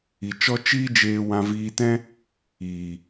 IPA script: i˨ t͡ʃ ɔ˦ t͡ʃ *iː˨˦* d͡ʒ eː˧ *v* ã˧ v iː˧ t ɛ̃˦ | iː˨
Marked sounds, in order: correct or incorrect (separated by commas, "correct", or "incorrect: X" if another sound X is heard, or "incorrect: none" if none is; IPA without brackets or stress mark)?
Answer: incorrect: iː˦, incorrect: w